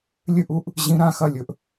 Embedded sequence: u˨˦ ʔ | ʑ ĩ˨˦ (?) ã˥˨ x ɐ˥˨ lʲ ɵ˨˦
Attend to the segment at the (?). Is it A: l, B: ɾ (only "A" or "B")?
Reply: B